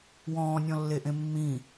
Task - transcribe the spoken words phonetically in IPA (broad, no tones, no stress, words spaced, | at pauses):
wɔ̃ːnʲɔ̃lːeʔẽ mːĩ